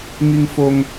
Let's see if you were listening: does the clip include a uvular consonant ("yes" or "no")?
no